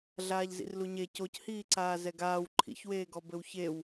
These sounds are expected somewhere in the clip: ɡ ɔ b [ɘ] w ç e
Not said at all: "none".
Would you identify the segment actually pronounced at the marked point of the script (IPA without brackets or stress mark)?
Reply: ɘ